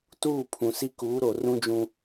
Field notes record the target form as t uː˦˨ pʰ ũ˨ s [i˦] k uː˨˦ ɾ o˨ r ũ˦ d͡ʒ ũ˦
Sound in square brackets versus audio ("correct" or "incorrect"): correct